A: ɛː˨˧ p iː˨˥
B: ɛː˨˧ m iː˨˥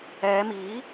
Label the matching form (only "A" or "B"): B